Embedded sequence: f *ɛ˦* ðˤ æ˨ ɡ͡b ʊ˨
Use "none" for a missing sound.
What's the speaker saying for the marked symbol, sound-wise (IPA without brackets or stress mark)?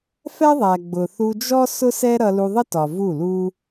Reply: ɛ˦